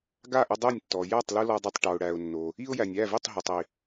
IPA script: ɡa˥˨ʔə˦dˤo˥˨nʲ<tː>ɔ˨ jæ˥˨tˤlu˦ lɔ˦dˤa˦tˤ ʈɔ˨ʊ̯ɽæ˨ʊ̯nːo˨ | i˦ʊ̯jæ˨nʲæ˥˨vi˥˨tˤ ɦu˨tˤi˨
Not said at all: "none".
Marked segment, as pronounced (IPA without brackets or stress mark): tː